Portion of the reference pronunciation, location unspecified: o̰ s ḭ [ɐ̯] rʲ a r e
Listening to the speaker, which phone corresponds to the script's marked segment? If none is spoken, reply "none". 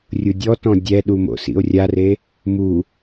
o̯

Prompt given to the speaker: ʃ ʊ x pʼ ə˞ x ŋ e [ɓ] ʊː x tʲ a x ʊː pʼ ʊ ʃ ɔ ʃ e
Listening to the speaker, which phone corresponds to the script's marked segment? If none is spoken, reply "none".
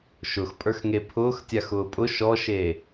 pʰ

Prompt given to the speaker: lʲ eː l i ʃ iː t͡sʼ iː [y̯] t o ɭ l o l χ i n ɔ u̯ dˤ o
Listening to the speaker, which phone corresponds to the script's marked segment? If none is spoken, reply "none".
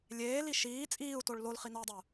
u̯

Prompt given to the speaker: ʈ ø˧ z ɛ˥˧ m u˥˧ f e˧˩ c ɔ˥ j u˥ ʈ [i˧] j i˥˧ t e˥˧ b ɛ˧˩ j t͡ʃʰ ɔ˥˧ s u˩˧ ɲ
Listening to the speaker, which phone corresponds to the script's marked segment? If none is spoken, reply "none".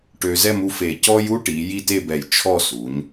i˩˧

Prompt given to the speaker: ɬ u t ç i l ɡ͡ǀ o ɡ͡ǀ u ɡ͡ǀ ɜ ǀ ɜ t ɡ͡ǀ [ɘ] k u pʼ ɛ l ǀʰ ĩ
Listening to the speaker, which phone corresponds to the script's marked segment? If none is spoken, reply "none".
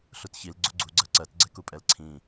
ɛ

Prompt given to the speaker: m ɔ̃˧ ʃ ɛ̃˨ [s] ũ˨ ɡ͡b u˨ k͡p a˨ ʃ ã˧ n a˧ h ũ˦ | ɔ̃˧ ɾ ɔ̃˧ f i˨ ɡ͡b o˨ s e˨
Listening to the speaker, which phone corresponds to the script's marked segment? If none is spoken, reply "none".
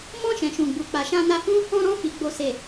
ʃ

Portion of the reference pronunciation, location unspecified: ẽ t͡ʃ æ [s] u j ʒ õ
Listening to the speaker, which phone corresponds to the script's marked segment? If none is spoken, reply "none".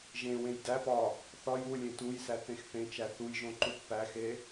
θ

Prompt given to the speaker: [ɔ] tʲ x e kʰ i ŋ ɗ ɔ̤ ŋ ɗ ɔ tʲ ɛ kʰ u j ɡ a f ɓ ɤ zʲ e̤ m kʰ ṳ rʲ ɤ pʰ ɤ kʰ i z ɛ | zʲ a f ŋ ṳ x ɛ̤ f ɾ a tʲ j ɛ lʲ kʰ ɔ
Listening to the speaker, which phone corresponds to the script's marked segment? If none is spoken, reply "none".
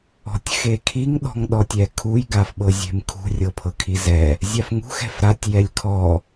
ɔ̤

